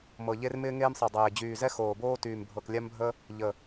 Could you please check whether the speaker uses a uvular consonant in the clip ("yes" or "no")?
no